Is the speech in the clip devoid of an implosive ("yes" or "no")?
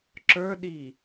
no